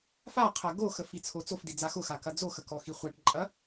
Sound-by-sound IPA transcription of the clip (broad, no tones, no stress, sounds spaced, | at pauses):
f a qʰ ɐ ɡ o x ə f i t͡sʰ o t͡s o f d i d͡z a x ʊ x a k ɐ d͡z o x ə k ɔ x i χʷ a ʈ ǃʼ ɐ